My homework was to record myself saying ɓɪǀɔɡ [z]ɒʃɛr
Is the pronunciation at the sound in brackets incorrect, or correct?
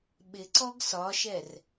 incorrect